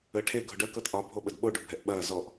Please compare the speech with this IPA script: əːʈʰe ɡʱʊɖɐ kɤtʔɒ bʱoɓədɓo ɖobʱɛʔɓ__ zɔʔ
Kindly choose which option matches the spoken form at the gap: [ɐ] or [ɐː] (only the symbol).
ɐː